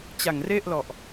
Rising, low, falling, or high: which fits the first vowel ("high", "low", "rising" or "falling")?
low